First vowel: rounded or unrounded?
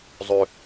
rounded